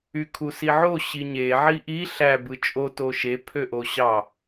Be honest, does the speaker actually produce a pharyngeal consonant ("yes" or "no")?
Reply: yes